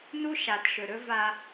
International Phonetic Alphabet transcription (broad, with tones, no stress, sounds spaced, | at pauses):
n u˦ ʃ a˨ t ʃ ɵ˨ ɾ ɵ˦ v a˦